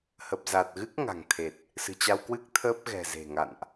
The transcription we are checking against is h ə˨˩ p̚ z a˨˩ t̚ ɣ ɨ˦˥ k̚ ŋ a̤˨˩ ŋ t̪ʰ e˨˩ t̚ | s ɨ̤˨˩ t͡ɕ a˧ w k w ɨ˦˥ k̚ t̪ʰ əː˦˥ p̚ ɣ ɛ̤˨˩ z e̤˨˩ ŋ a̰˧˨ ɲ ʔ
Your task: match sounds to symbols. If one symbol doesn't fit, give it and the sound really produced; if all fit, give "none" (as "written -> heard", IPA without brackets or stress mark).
ɲ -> n